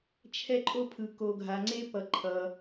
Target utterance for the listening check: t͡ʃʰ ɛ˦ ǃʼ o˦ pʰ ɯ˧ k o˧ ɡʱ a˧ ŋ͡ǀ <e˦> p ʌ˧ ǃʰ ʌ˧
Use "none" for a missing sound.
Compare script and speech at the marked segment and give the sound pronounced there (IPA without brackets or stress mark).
e˦